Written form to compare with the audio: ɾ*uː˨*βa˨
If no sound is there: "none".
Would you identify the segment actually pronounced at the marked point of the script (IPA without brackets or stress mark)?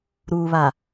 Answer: uː˨